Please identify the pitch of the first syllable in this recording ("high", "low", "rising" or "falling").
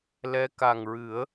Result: rising